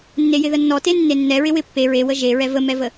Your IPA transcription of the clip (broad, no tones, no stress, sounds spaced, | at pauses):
nː e j ɪ ð ə nː ɔ t e nː e nː ɛ ɹ ɪ w ɪ pː e ɹ e w ə ʒ e ɹ ɛ v ə m ɛ v ə